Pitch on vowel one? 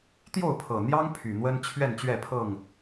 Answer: falling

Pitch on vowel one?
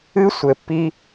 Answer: high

